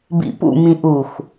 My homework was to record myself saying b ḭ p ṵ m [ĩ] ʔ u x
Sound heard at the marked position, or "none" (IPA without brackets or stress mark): ĩ